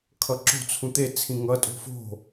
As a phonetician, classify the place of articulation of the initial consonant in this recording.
velar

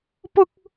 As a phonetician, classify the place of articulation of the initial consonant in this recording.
labial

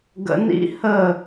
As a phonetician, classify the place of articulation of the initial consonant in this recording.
velar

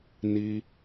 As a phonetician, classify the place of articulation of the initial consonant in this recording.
alveolar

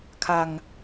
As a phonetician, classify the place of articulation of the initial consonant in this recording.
velar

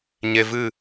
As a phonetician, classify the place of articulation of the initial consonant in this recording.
palatal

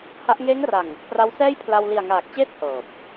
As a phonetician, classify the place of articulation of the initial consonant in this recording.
glottal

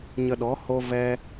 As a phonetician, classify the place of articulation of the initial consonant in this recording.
palatal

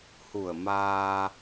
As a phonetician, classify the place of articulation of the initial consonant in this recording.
glottal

